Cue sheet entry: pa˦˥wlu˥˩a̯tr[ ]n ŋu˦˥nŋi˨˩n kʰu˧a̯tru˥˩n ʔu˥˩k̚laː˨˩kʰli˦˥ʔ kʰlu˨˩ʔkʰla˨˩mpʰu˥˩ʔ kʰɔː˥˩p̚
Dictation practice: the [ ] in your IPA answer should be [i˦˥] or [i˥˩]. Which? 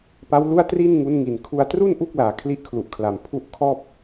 i˥˩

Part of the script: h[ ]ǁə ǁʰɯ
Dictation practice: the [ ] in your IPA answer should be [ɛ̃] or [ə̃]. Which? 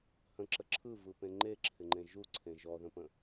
ə̃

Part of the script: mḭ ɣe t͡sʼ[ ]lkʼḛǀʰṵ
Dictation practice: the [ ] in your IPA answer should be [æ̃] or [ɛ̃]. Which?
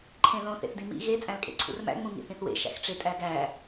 æ̃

